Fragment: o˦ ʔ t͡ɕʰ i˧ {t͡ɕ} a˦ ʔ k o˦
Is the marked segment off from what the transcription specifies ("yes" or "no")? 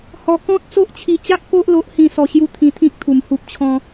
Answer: no